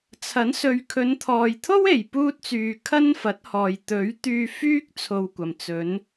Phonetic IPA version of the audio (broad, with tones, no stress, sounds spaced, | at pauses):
t͡sʰ ɐ˨˥ n s ɵ˧ ɥ kʰ ɵ˨˧ n t̪ʰ ɔː˨ j t̪ʰ o˥ w e˨ j p uː˥ t̚ t͡s yː˧ kʰ ɐ˥ n f ɐ˨˥ t̚ h ɔː˨ j t̪ ɵ˨˥ ɥ t̪ yː˧ f yː˥ k̚ t͡sʰ o˧ w kʷ ɐ˨ m t͡s ɵ˨˧ n